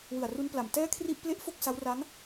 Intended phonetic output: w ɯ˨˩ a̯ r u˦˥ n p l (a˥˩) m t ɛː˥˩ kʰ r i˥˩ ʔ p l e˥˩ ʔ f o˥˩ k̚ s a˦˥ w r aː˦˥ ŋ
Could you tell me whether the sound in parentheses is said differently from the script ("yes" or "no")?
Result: yes